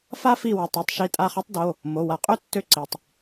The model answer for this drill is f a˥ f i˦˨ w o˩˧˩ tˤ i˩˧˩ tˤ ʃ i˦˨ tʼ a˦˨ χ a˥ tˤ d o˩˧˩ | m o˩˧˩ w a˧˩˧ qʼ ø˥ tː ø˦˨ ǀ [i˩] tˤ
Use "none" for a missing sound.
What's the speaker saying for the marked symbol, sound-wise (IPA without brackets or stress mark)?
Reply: i˩